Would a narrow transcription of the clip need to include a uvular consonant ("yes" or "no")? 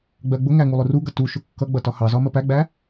no